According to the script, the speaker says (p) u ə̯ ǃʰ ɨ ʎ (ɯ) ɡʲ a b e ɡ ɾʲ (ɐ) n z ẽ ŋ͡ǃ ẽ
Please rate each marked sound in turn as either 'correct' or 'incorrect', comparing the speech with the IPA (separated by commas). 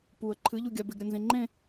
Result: correct, incorrect, correct